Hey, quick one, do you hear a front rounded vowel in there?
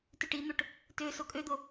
yes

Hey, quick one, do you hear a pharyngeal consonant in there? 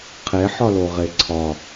yes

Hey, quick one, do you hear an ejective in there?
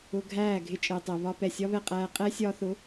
yes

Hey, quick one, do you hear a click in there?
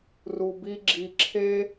yes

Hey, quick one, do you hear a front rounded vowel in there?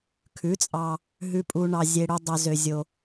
yes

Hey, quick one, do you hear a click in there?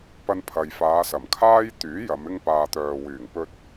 no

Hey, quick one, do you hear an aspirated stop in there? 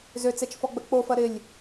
no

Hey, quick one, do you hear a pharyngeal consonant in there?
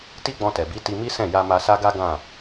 no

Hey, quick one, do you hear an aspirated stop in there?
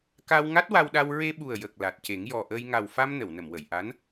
no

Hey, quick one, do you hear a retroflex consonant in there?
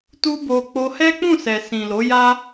no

